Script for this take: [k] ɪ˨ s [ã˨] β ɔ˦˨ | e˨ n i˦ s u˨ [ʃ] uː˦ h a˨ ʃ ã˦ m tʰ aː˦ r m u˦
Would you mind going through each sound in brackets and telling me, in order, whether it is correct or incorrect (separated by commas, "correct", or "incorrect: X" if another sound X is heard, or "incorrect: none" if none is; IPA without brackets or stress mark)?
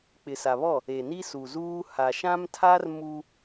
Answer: incorrect: k͡p, incorrect: a˨, incorrect: z